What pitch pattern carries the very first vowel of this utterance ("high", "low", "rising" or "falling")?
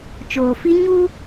low